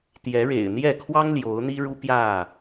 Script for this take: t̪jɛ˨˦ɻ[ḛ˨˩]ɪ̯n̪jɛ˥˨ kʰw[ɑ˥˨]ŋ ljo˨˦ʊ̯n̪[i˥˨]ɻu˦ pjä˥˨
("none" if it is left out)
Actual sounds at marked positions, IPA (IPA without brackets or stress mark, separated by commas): ḛ˨˩, ɑ˦, i˦